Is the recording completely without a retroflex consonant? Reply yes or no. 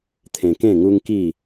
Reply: yes